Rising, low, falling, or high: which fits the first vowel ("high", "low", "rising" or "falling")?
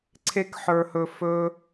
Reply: high